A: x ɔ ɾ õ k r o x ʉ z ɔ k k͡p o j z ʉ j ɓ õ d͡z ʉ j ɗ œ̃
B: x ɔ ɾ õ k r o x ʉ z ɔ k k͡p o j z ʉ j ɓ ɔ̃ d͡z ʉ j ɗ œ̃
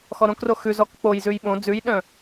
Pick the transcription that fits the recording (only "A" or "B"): A